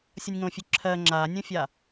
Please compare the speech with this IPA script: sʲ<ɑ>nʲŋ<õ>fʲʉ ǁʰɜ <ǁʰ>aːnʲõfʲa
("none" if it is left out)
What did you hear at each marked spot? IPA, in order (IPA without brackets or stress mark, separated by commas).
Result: ʌ, õ, ŋ͡ǁ